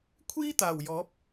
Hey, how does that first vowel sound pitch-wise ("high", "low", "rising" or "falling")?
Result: high